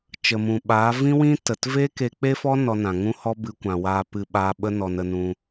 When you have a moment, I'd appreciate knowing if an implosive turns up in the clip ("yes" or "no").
yes